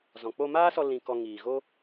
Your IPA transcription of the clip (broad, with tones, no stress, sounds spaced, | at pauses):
z ɔ̃˨ k͡p o˧ m aː˦ s ɔ˧ l ĩ˧ k ɔ˧ ŋ iː˨ ɣ o˦